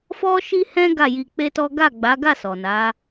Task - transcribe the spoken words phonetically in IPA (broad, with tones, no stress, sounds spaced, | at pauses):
f ɔ˦ ʃ i˦ h ɛ̃˦ ɡ a˦˨ j i˧ k͡p e˦ t ɔ˦ ɡ a˦˨ ɡ͡b a˨˦ ɡ a˦˨ s ɔ˨ n a˨˦